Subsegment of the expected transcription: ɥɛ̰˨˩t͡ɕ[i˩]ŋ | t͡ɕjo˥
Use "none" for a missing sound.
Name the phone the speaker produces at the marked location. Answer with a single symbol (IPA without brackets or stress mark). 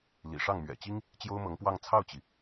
i˥